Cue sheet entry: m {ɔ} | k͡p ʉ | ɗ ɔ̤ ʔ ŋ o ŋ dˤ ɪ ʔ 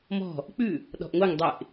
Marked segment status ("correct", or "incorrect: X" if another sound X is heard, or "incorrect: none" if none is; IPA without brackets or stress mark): incorrect: ɔ̤